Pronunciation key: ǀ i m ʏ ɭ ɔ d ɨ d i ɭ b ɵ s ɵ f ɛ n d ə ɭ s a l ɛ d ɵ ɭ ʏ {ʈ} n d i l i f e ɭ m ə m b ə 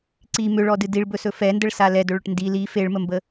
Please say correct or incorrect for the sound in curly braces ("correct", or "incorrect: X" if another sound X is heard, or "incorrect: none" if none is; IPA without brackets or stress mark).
correct